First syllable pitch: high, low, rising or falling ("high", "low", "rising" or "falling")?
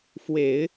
low